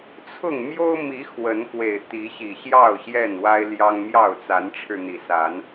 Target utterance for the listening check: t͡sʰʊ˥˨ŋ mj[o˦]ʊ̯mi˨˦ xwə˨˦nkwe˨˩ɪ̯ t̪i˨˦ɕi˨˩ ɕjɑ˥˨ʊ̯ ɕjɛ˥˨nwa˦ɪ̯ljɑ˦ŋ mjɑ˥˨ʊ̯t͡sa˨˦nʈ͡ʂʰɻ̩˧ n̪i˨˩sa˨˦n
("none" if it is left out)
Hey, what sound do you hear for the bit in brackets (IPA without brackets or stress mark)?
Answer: o˦